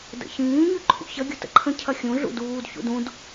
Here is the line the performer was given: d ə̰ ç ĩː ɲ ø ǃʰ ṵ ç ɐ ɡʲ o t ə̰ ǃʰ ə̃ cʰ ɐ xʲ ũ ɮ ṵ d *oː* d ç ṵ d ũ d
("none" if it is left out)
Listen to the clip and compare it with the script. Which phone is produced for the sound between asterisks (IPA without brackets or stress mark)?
uː